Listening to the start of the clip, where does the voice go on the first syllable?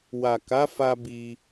low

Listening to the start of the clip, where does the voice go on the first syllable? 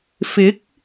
rising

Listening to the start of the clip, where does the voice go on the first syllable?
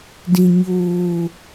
low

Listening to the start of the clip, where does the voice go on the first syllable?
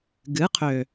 rising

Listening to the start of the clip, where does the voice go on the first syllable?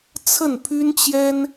falling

